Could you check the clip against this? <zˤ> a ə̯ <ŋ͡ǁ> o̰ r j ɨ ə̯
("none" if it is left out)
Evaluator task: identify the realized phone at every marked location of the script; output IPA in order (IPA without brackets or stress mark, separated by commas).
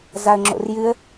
z, ŋ͡ǁ